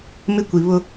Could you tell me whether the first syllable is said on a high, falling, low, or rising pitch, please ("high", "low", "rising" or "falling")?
high